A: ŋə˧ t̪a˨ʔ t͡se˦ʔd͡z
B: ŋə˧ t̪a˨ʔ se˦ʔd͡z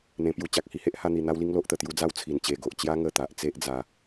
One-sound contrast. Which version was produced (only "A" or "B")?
A